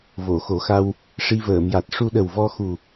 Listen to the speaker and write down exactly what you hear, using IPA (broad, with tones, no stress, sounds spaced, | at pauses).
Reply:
v o˨˩˨ x o˨˩˦ x a˧ w | ʂ i˧ v əː˨˩˨ m j a˨˩ t̚ ʂ u˧ ɗ ə˨˩ w v ɔ˧ x u˨˩